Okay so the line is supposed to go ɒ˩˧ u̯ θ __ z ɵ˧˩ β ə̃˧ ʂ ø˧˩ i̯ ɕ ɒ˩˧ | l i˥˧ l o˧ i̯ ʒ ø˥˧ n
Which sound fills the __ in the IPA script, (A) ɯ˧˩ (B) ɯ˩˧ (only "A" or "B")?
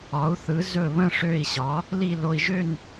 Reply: B